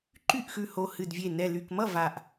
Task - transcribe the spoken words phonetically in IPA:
ǃy˥˩ʔxʉ˧˩ho˧˩ hɨ˧˩dvʲe˧˩ nɛ˧˩ly˧˩k mʌ˥˩ va˧˩ʔ

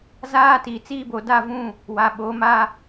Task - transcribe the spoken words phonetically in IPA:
zaː˦tiː˨t͡siː˦bo˨ da˦˨vũ˦˨ | wa˨ɓo˨˦ma˦

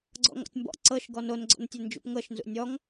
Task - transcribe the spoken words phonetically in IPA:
ɡ͡ǀɔ̰ŋɔ̰tʲmbɔ̰ ǀɤʃ ɡɔnonɡ͡ǀɔ̰ntʲɛ nd͡ʒṵpŋɤʃnzṵ nʲɔŋ

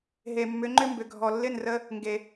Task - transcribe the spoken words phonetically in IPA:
ɦe˨mːʏ˨˦ŋ͡ǃʏ˦ mbʏ˨ɡʱɔ˨ lːɪ˦˨nrə˧ | ŋɡe˨

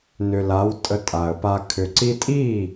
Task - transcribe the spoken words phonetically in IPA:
nʏ˨la˨˦w tʼə˧tʼa˨ə̯pa˧ kʰʏ˨ǀi˧tʼi˦˨

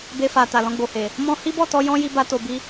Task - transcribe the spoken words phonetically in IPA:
be˧fa˨ ta˨ lɔ̃˧ɡ͡bo˨he˨ | mɔ̃˦ hi˦bɔ˦˨tɔ˧ jɔ̃˦ ji˦ba˦to˧ bi˦

